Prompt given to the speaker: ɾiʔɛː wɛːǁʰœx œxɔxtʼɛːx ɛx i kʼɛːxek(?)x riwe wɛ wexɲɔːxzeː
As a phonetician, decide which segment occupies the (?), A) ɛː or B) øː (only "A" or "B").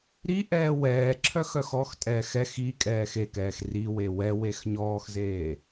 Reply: A